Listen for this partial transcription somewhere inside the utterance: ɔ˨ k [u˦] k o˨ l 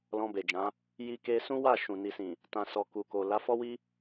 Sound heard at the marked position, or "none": u˨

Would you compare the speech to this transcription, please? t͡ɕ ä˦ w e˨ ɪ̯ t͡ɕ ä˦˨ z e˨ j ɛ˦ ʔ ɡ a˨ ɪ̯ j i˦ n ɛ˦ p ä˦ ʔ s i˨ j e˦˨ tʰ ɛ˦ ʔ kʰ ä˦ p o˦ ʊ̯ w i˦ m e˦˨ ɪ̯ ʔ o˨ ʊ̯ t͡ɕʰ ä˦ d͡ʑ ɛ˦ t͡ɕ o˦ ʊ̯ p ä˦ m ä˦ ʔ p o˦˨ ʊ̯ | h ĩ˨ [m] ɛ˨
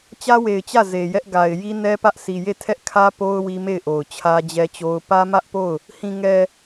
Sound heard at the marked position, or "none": ŋ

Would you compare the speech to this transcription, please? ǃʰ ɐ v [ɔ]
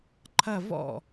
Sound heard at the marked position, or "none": ɔ̰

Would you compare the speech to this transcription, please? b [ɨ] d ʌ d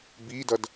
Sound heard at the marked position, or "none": i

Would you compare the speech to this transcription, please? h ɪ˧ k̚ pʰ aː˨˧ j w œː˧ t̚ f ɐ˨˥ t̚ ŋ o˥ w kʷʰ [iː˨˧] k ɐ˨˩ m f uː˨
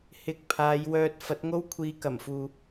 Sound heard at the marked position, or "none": iː˨˧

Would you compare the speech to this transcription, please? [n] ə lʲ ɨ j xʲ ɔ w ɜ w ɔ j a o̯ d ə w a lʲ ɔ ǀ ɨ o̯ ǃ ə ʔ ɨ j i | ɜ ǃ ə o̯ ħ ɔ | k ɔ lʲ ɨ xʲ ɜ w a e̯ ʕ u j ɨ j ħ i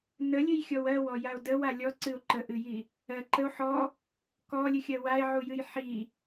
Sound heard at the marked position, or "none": n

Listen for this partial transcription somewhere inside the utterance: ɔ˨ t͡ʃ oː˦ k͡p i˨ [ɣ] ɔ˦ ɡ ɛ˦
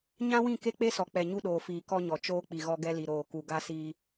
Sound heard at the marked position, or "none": ɣ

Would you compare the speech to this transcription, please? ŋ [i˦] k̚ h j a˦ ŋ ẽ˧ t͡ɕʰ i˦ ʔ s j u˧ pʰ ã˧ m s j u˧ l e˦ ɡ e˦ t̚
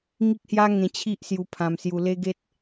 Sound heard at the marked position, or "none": i˦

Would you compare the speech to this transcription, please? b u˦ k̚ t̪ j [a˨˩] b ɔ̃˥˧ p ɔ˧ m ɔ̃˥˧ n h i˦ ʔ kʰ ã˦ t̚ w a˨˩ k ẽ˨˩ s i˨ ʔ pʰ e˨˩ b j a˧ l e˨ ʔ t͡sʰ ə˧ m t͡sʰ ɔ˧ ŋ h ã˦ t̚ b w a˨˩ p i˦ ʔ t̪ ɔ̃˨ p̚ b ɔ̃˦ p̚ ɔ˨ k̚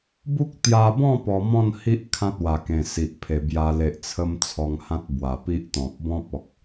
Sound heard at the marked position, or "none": a˧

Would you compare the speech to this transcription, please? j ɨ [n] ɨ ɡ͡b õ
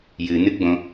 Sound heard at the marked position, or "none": n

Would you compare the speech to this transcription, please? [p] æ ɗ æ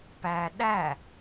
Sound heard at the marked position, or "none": p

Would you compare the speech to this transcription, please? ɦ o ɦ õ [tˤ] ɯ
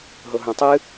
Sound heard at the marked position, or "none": tˤ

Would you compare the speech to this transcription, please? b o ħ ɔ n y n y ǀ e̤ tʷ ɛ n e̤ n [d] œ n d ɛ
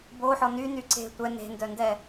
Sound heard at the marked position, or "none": d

